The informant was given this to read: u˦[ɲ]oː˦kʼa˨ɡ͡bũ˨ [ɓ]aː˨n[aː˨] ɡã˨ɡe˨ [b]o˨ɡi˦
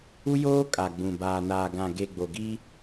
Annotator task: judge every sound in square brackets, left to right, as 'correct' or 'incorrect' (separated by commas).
incorrect, incorrect, correct, incorrect